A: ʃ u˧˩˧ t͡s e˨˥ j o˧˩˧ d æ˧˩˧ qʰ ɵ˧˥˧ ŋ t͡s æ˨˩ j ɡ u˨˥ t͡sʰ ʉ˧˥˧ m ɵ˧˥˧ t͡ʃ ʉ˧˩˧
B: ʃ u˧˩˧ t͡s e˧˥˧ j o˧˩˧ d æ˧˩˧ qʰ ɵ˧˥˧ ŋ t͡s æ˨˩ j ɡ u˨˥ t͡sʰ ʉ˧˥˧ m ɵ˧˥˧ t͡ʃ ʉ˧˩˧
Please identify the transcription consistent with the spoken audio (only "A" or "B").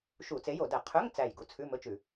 A